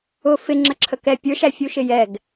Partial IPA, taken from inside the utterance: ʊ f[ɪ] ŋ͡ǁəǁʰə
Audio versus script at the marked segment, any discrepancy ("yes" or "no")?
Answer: no